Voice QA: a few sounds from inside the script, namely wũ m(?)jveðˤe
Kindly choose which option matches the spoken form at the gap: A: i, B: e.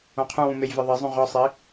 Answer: B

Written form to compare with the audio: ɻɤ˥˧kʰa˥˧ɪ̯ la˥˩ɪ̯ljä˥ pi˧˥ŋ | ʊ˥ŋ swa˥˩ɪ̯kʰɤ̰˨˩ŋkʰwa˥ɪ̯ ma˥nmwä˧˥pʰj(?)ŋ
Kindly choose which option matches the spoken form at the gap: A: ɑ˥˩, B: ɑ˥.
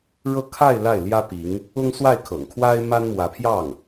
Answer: A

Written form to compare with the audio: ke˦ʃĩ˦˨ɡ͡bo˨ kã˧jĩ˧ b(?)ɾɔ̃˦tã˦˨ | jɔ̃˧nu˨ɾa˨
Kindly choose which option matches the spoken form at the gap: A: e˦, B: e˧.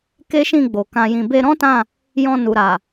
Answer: B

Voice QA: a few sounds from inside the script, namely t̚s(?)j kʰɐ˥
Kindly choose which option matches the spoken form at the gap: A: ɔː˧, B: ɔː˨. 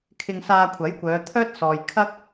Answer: B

